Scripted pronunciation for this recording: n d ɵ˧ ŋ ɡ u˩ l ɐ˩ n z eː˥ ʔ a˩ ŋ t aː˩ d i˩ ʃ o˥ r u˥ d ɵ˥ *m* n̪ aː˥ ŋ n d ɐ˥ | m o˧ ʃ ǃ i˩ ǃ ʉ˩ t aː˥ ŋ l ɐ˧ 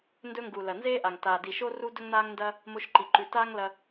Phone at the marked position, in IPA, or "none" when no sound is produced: ŋ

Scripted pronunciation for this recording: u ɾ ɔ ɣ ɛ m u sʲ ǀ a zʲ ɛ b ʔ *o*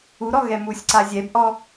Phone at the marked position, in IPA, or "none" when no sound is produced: ɔ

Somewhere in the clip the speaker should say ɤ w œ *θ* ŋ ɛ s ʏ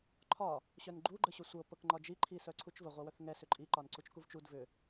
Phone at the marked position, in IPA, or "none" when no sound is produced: θ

